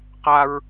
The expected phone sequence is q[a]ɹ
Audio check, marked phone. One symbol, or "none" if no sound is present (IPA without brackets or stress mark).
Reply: a